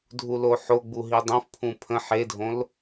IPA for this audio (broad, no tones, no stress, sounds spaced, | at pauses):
dʱ u l o ħ o ɡ͡b u ɦ i dˤ õ f pʰ ũ pʰ ə̃ ħ e dʱ õ l